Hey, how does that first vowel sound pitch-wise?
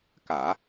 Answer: low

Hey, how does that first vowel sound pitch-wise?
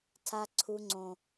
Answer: high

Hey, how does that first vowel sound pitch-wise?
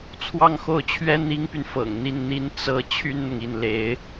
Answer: falling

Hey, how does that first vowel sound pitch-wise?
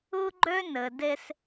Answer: high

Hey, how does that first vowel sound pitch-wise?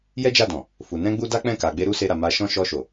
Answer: high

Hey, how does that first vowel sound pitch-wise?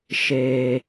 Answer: low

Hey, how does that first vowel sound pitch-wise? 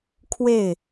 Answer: falling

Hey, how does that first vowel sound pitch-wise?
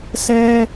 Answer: high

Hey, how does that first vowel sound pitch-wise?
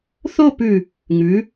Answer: falling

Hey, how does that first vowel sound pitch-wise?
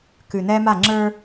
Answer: low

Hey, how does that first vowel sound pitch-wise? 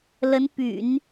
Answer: rising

